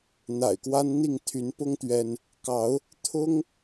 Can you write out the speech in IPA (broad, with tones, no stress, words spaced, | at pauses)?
n̪a̰˨˩ɪ̯kwa˦nn̪i˥˨ŋ t̪ʰy˨˦npʊ˦ŋ t̪ɥɛ˦n | kɑ˨˦ʊ̯ | t̪ʰʊ˦ŋ